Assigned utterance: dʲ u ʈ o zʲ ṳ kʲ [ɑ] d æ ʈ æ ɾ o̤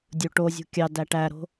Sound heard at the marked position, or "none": ɑ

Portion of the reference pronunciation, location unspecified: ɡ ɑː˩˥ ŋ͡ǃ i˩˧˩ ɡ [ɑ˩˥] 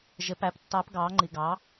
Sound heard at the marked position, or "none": ɑ˩˥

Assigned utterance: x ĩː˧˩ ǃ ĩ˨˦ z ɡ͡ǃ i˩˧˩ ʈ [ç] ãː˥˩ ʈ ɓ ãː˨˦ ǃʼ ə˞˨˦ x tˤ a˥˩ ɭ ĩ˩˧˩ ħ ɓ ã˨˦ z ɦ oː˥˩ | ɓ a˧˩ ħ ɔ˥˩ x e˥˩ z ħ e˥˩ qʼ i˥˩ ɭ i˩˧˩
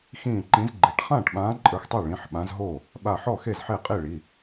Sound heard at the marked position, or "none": χ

